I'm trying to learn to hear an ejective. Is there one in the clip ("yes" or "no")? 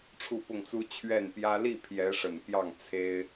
no